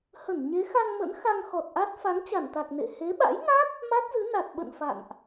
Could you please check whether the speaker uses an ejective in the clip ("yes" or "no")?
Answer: no